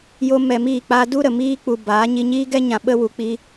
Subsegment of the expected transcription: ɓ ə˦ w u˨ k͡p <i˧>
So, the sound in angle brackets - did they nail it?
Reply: yes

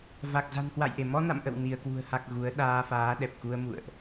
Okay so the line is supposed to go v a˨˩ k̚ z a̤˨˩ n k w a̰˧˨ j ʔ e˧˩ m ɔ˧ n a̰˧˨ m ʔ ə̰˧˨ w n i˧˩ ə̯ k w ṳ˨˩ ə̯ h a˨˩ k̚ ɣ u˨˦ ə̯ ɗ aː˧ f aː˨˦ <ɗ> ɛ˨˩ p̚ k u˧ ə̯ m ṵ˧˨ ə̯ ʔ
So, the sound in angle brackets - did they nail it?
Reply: yes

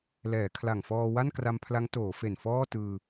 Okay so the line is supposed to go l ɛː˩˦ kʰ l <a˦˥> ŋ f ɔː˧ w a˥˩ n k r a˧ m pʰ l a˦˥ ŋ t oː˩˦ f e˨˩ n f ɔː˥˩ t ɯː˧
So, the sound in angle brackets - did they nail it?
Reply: no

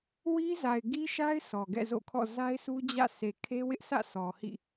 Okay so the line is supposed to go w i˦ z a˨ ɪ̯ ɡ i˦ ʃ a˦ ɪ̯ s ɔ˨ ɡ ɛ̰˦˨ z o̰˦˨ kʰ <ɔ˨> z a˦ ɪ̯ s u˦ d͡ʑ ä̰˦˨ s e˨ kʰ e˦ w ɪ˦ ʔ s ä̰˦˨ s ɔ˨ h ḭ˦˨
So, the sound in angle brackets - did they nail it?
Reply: no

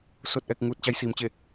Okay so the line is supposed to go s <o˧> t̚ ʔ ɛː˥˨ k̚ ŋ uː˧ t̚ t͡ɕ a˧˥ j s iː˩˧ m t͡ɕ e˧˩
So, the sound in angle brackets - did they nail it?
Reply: no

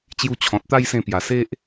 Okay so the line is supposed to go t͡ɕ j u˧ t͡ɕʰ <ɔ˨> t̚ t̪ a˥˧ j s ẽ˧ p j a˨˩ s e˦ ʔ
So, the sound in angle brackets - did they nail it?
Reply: no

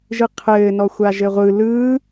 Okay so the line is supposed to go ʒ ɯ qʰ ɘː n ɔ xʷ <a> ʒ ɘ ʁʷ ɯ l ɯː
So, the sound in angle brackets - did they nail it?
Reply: yes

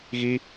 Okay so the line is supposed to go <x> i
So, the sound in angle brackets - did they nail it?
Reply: no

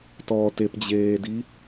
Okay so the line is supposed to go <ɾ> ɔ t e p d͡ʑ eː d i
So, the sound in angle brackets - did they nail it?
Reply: no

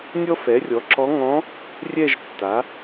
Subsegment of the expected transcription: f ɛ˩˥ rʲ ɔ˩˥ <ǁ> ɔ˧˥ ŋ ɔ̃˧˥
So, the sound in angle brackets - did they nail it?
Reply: yes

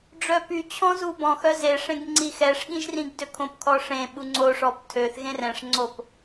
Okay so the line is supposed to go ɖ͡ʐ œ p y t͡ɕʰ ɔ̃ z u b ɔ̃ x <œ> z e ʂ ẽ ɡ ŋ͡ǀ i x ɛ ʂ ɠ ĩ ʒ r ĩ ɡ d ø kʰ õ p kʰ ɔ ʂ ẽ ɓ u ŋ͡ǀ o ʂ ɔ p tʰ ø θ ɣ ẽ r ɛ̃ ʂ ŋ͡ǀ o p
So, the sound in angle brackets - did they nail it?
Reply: yes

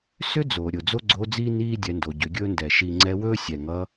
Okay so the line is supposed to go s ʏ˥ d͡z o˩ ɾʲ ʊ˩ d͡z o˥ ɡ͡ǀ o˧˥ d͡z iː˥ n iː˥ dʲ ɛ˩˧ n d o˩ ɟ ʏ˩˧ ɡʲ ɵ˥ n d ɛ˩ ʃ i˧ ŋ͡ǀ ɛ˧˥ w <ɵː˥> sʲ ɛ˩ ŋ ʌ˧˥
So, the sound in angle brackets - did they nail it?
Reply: yes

